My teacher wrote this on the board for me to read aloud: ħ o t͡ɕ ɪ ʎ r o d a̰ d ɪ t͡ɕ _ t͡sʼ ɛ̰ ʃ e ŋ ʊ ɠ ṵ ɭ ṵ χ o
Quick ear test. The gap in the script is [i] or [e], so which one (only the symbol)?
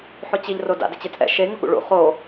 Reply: e